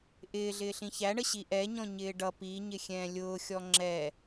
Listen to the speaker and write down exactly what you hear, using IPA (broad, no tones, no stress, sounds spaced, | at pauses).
ʔ ɪː ɮ ɪː ɬ ĩ ç æ ɳ ə ɕ i ʔ ɛ ɲ ɔ̃ ɲ ɪː ɖ ʌ p i ɲ ɪ xʲ ɛ̃ː lʲ ʊː xʲ ɔ ŋ͡ǁ ɛ